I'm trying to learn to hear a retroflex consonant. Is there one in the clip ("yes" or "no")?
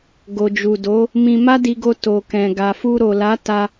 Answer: no